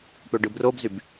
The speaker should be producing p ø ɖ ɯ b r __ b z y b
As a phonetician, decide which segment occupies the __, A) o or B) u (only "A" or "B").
A